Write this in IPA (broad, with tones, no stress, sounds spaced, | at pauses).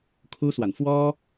kʰ u˥ s w a˨ n f w ɔ˥